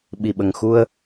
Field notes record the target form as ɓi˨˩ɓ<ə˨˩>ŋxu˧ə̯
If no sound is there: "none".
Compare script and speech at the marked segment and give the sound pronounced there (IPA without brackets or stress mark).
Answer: ə˨˩